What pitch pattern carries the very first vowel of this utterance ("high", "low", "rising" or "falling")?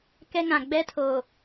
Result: high